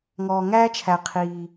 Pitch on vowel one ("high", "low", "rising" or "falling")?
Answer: low